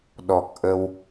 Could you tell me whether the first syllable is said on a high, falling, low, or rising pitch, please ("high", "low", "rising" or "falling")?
low